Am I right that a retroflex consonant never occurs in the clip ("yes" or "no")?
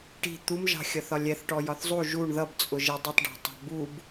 no